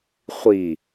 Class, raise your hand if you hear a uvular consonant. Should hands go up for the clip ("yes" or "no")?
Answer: yes